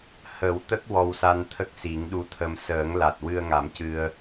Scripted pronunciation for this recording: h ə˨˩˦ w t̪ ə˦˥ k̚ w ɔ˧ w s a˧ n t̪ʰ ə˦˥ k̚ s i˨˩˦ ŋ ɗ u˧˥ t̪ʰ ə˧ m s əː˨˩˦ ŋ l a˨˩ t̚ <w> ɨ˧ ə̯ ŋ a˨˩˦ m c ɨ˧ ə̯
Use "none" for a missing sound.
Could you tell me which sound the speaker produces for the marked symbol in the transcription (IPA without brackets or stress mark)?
w